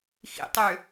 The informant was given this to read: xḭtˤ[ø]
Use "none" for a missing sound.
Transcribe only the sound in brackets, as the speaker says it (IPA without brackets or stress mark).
ø